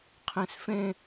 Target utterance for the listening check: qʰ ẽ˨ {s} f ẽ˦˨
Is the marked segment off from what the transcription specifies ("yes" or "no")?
no